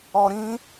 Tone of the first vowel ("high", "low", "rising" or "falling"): low